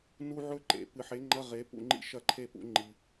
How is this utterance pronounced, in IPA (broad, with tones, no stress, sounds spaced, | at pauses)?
n u˥ ʕ ɵ˥ ǃ ḛ˨˩˦ p ɨ˨˩˦ ħ e˨˥ ŋ͡ǃ ɐ˧˥˧ ʁ e˨˥ p ṵ˥˨ ŋ͡ǃ ḭ˥ ʃ ɐ˥˨ ǃʰ e˥˨ p ṵ˨˥ ŋ͡ǃ i˨